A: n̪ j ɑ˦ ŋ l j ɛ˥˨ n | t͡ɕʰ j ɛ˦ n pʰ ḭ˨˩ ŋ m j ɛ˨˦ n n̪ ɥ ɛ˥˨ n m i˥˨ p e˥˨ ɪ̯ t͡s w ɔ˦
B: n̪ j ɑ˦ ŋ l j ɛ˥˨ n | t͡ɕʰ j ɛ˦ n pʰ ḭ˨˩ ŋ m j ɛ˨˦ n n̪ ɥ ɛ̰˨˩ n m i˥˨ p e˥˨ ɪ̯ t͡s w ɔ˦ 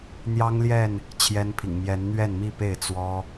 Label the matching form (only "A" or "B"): A